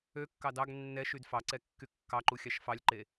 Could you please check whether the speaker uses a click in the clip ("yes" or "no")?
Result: yes